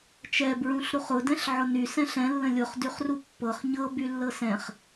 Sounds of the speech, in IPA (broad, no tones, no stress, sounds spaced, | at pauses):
t͡ʃ ɛ b ɹ ũ ɬ ɾ u χ ʊ d ɛ̃ ɬ ʕ ʊ n y s ɛ̃ ɬ ɛ̃ lː ə̃ lʲ ʊ χ d y χ r u pː ɤ χ ɲ ɤ b y lː ɤ s ɛ̃ χ